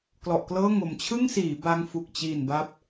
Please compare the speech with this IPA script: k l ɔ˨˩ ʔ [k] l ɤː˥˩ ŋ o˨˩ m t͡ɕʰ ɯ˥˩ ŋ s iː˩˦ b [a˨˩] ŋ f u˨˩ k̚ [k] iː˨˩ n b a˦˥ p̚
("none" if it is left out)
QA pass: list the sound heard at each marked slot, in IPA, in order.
k, a˧, t͡ɕ

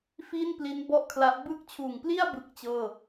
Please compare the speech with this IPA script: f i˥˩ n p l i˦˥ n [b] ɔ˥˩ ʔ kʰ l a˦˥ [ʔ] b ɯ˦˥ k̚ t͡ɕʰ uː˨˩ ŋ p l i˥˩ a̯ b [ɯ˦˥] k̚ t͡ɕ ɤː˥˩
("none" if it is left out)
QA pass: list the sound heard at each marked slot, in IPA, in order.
b, ʔ, ɯ˥˩

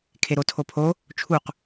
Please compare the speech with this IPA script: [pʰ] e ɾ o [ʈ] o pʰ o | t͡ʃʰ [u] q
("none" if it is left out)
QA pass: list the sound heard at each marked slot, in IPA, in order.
kʰ, tʰ, u

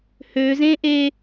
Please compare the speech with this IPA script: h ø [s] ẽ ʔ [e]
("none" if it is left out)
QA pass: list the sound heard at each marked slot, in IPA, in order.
z, e

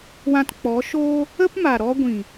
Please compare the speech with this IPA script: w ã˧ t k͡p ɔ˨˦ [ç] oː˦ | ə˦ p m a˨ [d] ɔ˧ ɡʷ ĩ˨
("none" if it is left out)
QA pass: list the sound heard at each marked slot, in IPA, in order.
ʃ, ɾ

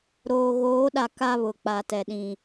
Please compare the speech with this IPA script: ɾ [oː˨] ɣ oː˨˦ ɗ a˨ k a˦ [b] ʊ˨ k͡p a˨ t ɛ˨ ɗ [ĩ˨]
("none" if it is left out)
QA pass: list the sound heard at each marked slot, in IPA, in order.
oː˨, β, ĩ˨

